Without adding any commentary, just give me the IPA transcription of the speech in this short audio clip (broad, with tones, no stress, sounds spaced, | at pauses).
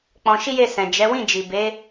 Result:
k͡p ɔ̃˧ ʃ i˦ j e˦˨ s ɛ̃˨ d͡ʒ ɛ˨˦ w ĩ˦˨ d͡ʒ i˨ b e˨˦